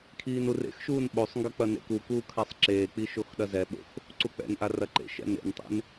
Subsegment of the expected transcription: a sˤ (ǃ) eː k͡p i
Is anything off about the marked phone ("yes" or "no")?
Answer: yes